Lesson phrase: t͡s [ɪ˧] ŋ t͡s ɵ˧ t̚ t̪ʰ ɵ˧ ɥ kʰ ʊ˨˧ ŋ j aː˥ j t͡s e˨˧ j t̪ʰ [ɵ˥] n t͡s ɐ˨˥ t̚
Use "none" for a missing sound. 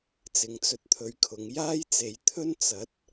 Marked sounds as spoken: ɪ˨˧, ɵ˥

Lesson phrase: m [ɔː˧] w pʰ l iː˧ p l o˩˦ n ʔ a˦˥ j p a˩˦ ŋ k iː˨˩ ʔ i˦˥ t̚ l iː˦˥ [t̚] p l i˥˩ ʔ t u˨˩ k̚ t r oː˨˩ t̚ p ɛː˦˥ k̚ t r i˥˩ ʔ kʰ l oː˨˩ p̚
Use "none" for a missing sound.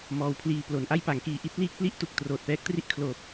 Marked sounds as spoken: ɔː˧, k̚

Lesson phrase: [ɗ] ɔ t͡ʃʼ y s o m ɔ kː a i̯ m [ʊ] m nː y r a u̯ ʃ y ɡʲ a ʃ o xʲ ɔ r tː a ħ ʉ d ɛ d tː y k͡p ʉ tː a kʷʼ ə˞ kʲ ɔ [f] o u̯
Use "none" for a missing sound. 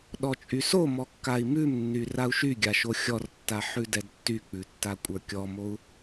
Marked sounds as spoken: ɗ, ʉ, m

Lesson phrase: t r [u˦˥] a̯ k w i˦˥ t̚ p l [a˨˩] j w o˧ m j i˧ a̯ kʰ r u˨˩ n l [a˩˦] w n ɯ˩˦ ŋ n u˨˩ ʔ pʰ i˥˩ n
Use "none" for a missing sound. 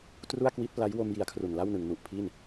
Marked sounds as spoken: u˥˩, a˦˥, a˥˩

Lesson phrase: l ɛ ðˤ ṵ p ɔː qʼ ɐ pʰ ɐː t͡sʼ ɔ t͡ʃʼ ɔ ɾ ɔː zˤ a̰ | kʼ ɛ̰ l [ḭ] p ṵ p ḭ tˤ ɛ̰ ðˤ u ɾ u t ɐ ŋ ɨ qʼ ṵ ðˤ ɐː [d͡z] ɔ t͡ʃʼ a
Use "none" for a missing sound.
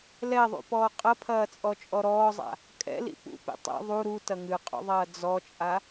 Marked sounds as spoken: ḭ, d͡z

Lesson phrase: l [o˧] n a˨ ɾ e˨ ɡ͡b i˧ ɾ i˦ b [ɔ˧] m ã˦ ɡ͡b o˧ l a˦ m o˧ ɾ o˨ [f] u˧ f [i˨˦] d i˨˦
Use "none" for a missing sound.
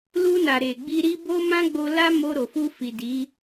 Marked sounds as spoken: u˧, o˧, f, i˨

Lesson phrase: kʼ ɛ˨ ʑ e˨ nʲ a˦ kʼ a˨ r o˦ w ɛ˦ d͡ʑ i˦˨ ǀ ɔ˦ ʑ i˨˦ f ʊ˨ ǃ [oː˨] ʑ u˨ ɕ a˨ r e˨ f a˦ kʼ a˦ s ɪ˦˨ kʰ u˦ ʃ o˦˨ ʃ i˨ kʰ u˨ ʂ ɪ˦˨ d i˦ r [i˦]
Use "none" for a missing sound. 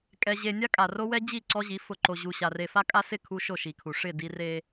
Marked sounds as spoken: o˨, e˦

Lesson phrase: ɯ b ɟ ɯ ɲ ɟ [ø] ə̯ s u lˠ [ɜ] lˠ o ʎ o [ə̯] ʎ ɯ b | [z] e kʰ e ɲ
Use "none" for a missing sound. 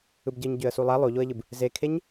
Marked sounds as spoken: ø, æ, ə̯, z

